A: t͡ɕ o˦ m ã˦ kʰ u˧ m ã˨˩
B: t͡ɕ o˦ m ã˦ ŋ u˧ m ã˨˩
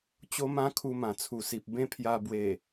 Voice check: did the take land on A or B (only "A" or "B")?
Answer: A